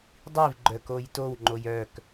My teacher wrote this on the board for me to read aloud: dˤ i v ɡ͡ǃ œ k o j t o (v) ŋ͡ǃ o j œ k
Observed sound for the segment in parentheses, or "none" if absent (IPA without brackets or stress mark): w